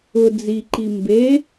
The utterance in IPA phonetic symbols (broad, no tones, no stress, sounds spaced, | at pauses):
ʊ d͡z i ǃ i m b e